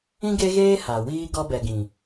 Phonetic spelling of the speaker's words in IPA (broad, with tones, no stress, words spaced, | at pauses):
ĩ˦ɡe˦ɣeː˦ ha˨ wiː˧ ɡɔ˧bɛ˨ɡĩ˨